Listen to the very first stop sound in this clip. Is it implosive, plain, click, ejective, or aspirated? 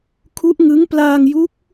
aspirated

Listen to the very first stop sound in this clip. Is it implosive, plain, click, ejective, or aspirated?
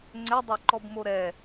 click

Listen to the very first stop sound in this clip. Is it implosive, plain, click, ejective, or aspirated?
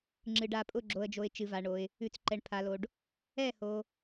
click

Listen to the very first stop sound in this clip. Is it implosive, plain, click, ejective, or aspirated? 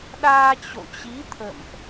implosive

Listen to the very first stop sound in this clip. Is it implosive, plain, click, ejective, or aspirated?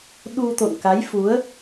implosive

